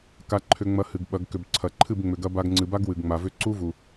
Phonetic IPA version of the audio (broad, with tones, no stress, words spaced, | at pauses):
ka˧ ǃʰʏ˧ŋ͡mɐ˧ hɨ˨ɡɓɐ˨˦ɡ kʏ˨bǀʰɐ˨ ǃʰɨ˦˨bŋ͡mʏ˨ɡɐ˧ba˧ɡ ŋ͡ǀɨ˨ba˦ɡ wɨ˨ɡŋ͡ma˨vʏ˦ ǀu˦vu˨